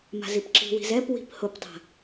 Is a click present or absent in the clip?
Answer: present